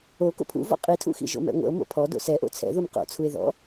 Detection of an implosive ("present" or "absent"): absent